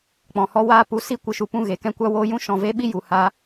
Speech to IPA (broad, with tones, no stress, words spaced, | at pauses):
k͡pɔ̃˨hɔ˧waː˧ pu˨˦ si˧kʷɨ˨ʃu˨ pũ˧ɣe˨kɛ̃˧ kʷa˧woː˧ jũ˧ʃɔ̃˨ve˧ ɓi˦ju˨haː˧